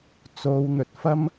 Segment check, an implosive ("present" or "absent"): absent